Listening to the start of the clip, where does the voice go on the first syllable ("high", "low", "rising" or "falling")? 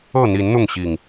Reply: falling